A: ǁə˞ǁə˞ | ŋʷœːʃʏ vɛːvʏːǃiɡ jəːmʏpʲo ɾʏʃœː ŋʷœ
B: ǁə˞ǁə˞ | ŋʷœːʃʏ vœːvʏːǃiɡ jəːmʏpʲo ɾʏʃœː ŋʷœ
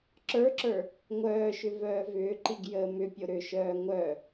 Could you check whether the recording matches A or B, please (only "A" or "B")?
B